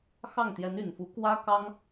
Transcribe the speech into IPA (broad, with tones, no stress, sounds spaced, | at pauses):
x ɑ˥˩ ŋ t̪ j ɛ˧˥ n y˨˩ n f u˧˥ k w ä˥ k ɑ˥ ŋ